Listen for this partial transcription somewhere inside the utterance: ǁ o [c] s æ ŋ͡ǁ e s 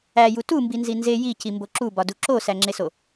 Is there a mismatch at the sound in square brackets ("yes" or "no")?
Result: yes